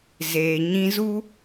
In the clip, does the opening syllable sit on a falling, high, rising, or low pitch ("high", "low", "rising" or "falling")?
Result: low